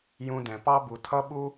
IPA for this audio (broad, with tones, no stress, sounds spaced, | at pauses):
j ũ˧ d ɛ̃˩ p ɑ˥ b u˩ tʰ ʌ˥ ɓ u˥